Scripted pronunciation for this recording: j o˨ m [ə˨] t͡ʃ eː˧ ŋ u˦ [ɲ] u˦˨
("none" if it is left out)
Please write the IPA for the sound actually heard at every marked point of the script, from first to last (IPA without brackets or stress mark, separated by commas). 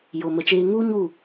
ə˨, ɲ